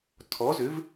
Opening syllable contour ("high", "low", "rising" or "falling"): rising